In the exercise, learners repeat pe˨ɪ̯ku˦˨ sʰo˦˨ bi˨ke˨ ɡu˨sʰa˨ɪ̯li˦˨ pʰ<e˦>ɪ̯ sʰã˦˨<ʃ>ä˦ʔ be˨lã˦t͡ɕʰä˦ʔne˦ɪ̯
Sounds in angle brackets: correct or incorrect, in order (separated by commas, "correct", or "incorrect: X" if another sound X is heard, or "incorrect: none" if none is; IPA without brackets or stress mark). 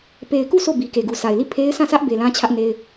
correct, incorrect: s